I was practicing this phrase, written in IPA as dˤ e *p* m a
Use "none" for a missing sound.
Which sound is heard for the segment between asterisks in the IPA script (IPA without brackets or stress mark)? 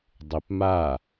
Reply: p